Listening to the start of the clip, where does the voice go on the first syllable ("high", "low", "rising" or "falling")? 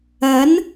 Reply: rising